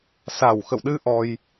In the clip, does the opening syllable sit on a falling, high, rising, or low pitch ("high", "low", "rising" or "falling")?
low